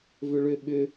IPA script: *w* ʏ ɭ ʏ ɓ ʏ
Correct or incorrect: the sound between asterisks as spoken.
incorrect: v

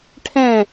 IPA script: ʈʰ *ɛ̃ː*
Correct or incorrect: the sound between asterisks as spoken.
incorrect: ɛ̃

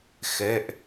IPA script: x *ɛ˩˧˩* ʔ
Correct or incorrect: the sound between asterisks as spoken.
correct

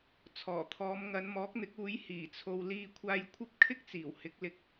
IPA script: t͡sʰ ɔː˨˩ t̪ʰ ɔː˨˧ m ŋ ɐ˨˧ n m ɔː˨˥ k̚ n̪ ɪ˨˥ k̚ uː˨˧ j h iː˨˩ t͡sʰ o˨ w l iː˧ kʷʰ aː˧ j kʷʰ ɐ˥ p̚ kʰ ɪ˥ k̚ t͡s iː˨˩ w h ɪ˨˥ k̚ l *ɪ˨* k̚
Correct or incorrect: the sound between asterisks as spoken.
correct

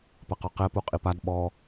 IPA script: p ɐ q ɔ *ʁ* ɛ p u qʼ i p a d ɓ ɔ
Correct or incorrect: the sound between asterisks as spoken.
incorrect: q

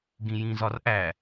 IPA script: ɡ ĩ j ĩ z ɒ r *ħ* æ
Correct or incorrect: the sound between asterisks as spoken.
incorrect: ʔ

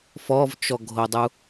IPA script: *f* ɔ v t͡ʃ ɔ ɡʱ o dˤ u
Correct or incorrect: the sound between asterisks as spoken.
correct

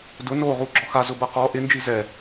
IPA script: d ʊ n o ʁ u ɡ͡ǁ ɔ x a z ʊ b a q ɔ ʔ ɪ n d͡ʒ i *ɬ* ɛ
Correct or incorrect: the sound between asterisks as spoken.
incorrect: z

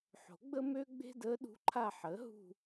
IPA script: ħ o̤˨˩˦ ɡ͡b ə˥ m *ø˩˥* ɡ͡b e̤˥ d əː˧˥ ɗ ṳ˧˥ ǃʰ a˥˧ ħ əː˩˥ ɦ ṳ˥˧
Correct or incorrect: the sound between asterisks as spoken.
incorrect: ø˥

